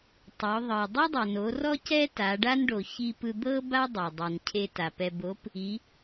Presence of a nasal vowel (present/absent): absent